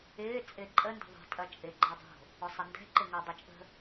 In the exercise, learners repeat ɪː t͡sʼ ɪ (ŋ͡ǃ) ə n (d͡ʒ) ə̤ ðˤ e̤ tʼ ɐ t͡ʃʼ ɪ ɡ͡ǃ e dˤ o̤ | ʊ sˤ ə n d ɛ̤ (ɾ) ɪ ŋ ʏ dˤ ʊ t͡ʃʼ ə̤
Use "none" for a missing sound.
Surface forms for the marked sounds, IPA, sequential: ǃʼ, d, ǃ

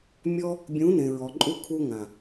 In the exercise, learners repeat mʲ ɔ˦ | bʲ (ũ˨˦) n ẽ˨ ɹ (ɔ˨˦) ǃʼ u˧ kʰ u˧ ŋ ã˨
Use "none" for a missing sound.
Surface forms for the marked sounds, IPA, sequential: ũ˨˦, ɔ˨

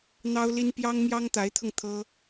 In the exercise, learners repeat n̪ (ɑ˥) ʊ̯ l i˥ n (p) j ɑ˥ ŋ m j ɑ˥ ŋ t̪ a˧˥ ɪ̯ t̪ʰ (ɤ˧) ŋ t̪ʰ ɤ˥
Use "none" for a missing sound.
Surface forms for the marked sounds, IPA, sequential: ɑ˥, p, ɤ˧

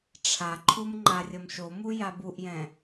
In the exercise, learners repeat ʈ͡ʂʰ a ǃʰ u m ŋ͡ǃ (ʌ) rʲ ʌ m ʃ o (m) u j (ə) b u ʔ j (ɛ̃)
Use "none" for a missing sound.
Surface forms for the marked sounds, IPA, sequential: a, m, a, ɛ̃

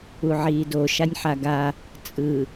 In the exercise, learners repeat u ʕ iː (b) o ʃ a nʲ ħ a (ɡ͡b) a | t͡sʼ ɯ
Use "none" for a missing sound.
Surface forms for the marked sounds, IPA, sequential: d, ɡ

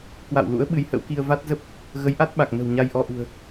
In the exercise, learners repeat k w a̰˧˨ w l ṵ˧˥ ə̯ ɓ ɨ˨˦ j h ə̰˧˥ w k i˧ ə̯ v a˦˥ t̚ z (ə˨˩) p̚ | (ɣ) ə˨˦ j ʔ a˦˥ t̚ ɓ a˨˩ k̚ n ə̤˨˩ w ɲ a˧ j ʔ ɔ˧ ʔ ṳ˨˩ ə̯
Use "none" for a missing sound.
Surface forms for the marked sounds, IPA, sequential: ə˦˥, ɣ

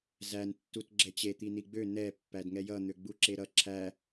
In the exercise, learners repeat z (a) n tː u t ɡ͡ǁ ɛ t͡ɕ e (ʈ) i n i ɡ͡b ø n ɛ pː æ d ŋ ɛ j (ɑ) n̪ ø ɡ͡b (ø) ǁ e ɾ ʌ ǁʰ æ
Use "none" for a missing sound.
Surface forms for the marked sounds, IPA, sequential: æ, t̪, ʌ, u

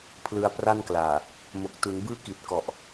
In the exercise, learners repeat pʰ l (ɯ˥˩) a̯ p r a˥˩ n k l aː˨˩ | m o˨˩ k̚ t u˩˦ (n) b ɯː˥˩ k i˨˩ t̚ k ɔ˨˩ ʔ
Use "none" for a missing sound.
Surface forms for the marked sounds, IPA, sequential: ɯ˧, n

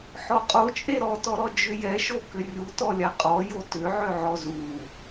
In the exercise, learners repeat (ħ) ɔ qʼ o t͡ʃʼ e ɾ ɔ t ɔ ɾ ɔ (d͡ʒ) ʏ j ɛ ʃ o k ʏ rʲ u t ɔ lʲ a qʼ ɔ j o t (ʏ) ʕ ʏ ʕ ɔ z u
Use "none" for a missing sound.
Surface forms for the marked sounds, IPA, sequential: ħ, d͡ʒ, ʏ

